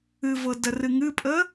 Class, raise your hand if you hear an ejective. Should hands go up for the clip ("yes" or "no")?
yes